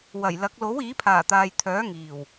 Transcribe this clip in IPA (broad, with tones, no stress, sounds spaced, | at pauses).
w ɐ˨˩ j l ɐ˨˥ k̚ l o˨˥ w iː˨˥ pʰ aː˨˩ t̪ aː˨ j t̪ʰ œː˨˥ ŋ iː˨˩ w